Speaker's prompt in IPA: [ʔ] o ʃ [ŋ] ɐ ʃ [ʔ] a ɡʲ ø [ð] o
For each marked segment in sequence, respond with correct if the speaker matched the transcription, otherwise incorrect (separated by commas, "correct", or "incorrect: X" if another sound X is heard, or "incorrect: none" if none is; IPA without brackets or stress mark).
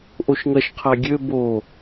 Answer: correct, correct, incorrect: qʰ, incorrect: b